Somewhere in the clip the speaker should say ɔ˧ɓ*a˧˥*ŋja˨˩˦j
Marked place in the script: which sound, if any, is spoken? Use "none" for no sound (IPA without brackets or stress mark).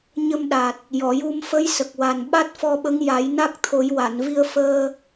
ə˧˥